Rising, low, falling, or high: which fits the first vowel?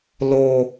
high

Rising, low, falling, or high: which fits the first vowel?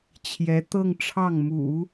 rising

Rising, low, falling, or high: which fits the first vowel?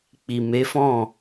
low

